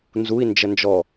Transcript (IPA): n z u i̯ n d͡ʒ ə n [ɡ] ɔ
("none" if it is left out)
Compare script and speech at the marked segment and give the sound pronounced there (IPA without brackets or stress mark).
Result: d͡ʒ